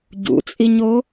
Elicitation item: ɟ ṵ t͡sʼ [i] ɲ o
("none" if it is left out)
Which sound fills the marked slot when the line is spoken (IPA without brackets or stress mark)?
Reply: i